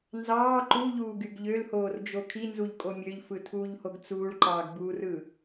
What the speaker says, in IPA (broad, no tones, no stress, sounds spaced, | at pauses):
n z ɑː ǃ u ʎ uː ɡ y ɡ ʎ ø l h oː r d͡ʒ o kʰ i n z u ʎ kʼ o mʲ ø ʎ f ɯ tʰ uː ʎ h o ɡ t͡s uː ɭ ǃ ɑː ɡ b uː r ɯ